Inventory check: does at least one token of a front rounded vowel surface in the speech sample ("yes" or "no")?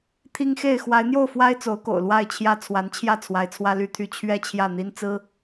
yes